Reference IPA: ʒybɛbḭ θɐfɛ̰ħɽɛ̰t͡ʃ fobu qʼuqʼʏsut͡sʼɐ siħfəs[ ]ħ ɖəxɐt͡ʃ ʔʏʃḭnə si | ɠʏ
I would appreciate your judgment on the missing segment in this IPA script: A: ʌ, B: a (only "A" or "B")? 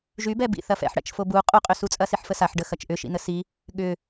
B